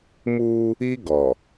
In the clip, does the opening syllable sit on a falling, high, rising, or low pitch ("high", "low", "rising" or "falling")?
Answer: high